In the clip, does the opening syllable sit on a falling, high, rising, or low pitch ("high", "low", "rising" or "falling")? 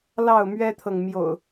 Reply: falling